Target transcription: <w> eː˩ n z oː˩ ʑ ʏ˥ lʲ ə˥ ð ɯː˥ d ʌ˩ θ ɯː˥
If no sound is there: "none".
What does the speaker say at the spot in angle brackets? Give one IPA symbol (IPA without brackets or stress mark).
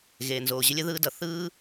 ɣ